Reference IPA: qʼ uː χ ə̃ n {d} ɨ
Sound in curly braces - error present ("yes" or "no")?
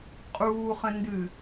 no